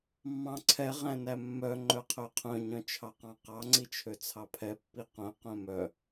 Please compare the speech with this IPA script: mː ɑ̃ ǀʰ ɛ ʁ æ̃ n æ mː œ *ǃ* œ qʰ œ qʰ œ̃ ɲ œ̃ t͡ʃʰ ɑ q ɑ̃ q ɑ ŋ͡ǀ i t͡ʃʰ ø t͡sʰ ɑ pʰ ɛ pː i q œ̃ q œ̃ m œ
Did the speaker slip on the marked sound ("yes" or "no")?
yes